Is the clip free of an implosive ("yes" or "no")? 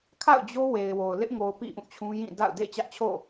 yes